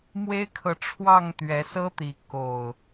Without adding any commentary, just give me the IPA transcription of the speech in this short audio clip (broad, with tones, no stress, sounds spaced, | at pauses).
m w e˦ ɪ̯ kʰ ɤ˨ ʈ͡ʂʰ w ɑ˥˨ ŋ t̪ ɥ ɛ˨˦ s ɤ˦ t̪ i˨˦ k o˨˩ ʊ̯